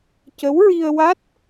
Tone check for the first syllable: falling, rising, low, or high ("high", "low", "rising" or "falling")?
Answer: rising